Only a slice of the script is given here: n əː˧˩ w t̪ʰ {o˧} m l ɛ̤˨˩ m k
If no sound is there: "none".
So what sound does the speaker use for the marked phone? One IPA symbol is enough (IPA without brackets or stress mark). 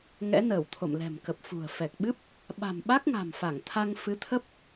o̰˧˨